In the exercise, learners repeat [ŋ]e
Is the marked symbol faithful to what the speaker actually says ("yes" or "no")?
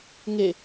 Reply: yes